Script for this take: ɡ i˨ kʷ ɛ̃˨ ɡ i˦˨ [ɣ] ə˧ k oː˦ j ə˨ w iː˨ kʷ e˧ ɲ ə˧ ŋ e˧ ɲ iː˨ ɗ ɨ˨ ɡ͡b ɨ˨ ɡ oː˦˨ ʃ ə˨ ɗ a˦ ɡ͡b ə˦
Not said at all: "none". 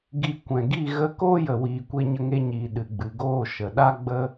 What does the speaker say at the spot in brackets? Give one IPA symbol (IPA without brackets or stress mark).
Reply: ɣ